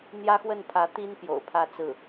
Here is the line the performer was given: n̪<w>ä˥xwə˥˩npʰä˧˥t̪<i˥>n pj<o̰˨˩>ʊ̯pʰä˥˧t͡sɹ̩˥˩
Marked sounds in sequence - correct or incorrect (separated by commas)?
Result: incorrect, correct, correct